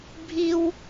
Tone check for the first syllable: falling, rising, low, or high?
high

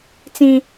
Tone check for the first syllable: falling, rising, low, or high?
high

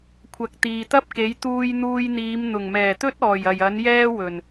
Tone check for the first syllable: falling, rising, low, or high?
rising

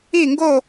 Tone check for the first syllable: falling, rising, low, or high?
falling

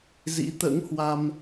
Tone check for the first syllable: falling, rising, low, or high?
rising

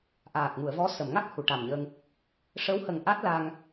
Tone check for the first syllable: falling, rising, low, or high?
low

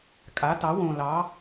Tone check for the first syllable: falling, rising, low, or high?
rising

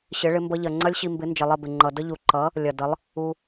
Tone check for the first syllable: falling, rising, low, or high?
rising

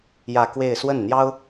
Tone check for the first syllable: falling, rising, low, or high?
falling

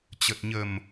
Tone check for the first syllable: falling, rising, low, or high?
low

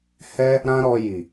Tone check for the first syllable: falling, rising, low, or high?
high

